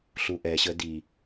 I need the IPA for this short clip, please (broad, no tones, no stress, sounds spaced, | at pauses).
ɬ u ʔ ɛ ɕ ə d i